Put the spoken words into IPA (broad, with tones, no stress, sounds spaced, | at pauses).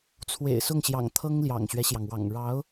t͡sʰ w ḛ˨˩ ɪ̯ s ʊ˥˩ ŋ ɕ j ɑ̰˨˩ ŋ t̪ʰ ɤ˥ ŋ l j ɑ̰˨˩ ŋ ɕ ɥ ɛ˦ ɕ j ɑ˩ ŋ w ɑ̰˨˩ ŋ ɻ ɑ˧˥ ʊ̯